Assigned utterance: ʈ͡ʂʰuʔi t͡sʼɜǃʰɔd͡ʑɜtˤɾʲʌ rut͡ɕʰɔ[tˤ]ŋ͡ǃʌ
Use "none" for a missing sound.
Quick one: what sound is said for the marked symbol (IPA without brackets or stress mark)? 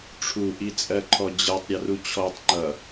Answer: tˤ